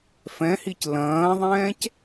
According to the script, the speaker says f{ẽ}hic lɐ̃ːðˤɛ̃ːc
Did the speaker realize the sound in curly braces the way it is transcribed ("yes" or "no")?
no